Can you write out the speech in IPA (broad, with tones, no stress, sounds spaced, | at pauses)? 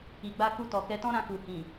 i˨ ɡ͡b a˧ k u˧ t ɔ˨ k ɛ˧ t ɔ̃˦ ɾ ã˧ k u˨ h ĩ˨